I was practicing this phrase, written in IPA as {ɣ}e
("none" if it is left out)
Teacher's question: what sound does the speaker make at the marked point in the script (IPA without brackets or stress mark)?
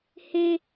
h